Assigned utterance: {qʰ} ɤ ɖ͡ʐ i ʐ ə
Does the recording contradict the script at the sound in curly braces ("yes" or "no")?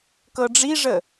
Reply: yes